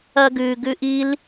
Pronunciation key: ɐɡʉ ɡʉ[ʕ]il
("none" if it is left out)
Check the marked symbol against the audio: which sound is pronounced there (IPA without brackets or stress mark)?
ʔ